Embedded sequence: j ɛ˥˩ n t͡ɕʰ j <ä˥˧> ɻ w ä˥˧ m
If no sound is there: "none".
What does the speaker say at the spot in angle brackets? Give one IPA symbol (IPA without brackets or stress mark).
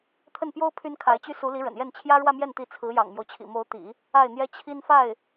ä˥